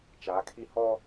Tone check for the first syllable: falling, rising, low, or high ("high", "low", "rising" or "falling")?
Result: rising